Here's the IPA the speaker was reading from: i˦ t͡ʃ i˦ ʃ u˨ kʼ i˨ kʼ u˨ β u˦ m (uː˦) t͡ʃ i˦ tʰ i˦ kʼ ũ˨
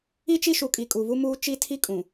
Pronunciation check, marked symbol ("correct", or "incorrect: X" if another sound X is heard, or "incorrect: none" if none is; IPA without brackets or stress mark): correct